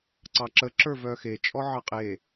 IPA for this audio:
ǀɑǁə ǁə˞vœxe t͡ʃʼɔʕɑqʼe

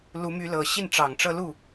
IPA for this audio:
lu˧˥my˧˥lɤ˨˩ ɕi˥˩nʈ͡ʂɑ˨˩ŋʈ͡ʂɤ˥˧ lu˥˩

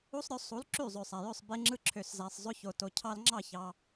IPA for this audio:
u˦sˤɾʲo˧sˤu˨˦l ǁy˦˨zˤø˨sˤæ˨jø˦˨sˤ be˧ŋ͡ǁɯ˧ǁʰø˨szæ˨sˤ zˤø˧ço˨ to˨cʰɑ˧lŋ͡ǁɑ˦˨ç ɑ˧

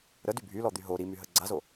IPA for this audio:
ɾədy bʱylɔd̪y ɦo ɾimyɦə ɡ͡ǀazo

